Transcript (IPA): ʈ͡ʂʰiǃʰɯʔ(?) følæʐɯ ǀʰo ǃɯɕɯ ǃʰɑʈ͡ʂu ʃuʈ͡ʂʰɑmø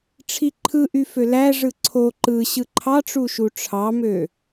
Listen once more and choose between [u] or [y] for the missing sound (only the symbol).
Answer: y